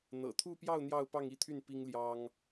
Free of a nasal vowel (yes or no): yes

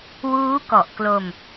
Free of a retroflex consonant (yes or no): yes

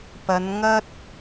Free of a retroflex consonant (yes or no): yes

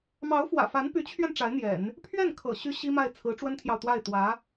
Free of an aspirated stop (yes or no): no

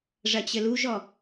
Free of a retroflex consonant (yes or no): no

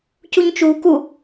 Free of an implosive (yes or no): yes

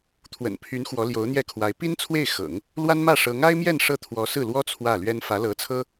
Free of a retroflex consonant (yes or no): no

